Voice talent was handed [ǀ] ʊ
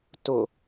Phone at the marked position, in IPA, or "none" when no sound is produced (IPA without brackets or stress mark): t